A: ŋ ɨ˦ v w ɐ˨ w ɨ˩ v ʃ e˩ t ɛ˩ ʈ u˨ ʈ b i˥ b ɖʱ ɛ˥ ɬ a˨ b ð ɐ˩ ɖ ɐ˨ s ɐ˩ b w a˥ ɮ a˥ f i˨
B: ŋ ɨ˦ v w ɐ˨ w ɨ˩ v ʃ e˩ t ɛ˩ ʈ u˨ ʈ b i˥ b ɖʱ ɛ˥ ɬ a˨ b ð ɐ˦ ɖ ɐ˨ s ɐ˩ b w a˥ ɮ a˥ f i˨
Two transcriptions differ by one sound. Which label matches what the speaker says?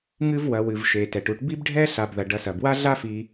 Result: A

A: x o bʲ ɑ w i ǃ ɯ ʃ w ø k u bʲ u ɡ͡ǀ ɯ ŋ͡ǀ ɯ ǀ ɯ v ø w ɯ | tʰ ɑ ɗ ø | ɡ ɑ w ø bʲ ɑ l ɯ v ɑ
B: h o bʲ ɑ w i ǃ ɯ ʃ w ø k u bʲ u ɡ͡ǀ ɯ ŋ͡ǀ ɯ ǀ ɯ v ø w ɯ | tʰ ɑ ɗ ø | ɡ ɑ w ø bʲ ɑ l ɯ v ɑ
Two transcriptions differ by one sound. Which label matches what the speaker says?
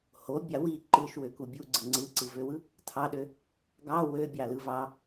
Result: B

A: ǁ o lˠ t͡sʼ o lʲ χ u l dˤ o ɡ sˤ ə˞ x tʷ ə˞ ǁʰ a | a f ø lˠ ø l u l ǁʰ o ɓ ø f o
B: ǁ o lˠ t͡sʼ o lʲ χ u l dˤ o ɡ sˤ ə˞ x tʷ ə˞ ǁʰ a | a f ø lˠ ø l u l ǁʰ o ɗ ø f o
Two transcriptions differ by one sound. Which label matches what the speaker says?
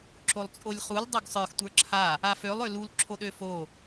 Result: B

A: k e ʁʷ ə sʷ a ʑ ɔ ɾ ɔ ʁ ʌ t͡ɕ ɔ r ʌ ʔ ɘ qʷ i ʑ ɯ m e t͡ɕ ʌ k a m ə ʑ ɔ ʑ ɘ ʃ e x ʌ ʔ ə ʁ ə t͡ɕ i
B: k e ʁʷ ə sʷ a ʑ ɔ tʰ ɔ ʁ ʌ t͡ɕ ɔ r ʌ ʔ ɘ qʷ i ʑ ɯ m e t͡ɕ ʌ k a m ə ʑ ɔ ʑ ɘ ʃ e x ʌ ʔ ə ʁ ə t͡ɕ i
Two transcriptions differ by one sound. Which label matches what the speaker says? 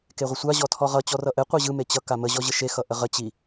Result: B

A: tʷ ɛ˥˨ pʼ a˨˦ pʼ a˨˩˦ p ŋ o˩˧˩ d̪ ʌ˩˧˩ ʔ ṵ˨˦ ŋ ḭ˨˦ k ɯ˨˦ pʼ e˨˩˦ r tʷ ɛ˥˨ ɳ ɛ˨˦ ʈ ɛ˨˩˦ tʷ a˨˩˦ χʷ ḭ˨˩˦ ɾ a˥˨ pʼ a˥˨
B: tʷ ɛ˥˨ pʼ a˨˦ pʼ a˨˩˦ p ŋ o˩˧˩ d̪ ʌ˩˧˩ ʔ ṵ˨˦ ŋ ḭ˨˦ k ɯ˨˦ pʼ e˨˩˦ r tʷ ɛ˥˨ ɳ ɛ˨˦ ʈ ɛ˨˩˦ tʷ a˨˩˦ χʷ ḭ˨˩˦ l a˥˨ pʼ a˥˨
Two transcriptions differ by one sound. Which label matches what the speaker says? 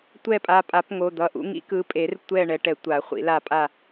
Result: B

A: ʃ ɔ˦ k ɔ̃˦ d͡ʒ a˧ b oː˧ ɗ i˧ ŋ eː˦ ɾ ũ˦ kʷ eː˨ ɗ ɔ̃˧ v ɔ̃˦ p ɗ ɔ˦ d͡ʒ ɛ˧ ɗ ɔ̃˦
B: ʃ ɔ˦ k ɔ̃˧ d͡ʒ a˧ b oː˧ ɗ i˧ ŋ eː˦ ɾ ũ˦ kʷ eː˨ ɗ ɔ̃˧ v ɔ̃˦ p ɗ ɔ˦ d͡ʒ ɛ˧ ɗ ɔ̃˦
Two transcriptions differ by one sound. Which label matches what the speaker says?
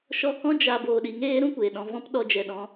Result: A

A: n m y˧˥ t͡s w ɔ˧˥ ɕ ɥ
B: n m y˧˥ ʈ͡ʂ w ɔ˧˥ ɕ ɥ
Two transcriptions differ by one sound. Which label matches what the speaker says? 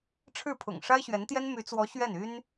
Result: A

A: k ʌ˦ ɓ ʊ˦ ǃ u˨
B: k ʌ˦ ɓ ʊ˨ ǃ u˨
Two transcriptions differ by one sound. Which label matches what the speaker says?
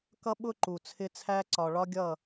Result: A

